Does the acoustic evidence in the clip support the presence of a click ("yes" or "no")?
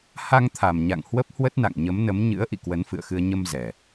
no